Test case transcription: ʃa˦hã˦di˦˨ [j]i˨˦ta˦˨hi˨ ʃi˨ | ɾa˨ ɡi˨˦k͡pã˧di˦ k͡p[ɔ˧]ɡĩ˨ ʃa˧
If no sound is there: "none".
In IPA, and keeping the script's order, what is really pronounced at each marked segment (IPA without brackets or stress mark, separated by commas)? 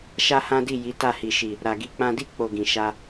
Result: j, o˧